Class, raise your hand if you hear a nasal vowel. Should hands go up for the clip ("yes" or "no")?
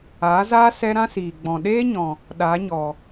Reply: yes